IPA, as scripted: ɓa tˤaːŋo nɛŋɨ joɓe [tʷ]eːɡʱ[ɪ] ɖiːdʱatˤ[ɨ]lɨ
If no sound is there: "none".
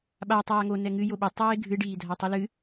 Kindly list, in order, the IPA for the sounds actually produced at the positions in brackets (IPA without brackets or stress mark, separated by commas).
tˤ, ɨ, ɨ